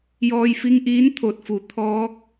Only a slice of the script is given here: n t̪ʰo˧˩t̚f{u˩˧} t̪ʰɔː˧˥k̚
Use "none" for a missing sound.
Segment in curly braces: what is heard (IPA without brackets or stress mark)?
u˩